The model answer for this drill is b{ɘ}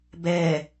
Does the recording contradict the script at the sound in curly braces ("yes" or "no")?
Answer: yes